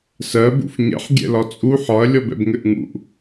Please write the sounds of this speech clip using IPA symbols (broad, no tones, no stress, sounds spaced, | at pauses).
s ɜ b ṵ f ɲ ɛ̰ ħ ɡʲ ɛ̰ l ɒ t͡sʼ u ħ ɒ ɐ̯ lʲ ɔ b ɛ̰ b ŋ ɘ ʔ ŋ ṵ ʔ